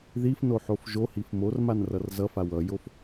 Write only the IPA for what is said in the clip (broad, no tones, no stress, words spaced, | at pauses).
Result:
ðifnoħof ʒohif mormanrʌr zʌfa wʌjof